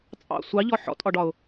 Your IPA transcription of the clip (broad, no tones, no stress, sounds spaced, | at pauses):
t͡sʼ ɑ̰ sʷ ɑ ʎ ɔ ħ ɔ̰ tʼ ɒ ɖ ɒ ʊ̯